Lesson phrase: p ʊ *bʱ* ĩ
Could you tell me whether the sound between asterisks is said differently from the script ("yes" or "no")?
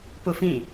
yes